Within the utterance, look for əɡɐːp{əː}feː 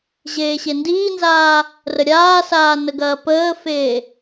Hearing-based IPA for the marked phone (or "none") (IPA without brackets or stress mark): əː